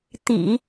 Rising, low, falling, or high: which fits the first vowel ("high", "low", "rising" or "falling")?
low